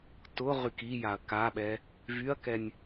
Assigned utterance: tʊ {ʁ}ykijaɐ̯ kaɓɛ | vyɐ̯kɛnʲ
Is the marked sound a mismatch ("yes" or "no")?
no